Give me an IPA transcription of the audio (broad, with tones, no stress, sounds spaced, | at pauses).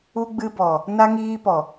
u˧ ɡ͡b ɨ˧ b ɔ˨ | n a˧ ŋ iː˧ p ɔ˨